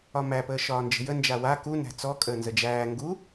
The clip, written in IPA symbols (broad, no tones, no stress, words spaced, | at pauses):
ɒmæpəː ʃɒːnd͡ʒə̤jə nd͡ʒawa ku næ̤t͡sɔ kʼəːnzəd͡ʒæː ŋɡu